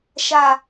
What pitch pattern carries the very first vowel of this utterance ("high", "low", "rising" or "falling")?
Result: low